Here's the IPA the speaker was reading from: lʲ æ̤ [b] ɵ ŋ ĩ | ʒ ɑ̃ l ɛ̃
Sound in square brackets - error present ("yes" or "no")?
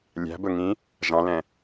no